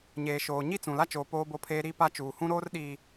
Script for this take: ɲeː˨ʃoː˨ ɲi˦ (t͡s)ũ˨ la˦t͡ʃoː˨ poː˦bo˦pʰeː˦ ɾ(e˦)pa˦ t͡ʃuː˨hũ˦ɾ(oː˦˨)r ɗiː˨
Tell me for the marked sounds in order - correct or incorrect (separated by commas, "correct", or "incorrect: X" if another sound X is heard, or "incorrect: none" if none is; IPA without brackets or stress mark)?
correct, incorrect: i˦, incorrect: oː˦